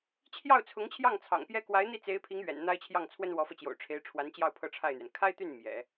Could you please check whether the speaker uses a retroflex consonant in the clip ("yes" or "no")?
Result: yes